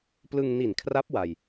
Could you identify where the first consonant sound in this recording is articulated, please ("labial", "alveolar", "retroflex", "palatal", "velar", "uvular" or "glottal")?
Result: labial